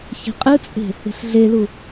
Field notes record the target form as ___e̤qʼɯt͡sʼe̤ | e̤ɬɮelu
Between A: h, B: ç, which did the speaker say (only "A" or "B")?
B